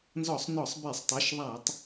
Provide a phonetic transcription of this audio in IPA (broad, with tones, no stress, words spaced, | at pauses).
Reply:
nzɔ˧˩˧sˤ nɔ˧˩˧sˤbe˧˩˧sˤtˤi˩˧˩ʃ ðˤa˧˩˧tˤ